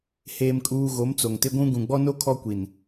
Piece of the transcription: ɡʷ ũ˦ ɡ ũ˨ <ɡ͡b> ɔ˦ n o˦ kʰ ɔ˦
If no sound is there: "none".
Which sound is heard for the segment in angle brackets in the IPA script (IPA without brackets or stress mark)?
ɡ͡b